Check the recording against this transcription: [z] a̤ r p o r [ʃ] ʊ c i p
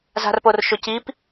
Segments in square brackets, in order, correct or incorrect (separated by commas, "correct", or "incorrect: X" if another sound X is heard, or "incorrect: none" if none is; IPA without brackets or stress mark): correct, correct